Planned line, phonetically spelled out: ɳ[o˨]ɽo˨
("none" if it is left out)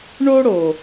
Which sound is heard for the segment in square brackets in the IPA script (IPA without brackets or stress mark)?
o˦